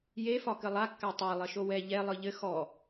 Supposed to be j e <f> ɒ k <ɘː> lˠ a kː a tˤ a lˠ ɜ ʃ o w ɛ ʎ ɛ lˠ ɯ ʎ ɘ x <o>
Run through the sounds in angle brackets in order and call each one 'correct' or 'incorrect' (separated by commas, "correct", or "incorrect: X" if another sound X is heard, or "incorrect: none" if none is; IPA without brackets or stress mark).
correct, incorrect: ɘ, incorrect: ɔ